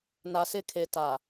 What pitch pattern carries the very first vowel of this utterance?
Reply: low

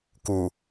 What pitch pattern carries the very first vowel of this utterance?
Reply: low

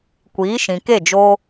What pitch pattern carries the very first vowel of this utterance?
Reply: rising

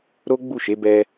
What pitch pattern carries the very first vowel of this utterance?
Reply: high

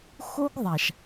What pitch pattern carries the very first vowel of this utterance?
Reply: high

